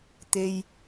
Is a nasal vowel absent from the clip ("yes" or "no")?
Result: yes